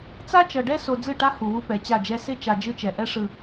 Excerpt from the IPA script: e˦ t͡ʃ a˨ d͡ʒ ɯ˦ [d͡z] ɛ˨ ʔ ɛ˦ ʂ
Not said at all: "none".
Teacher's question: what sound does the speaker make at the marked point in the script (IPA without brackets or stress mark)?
t͡ʃ